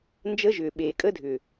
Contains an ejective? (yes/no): yes